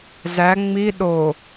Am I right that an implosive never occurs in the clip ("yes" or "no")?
no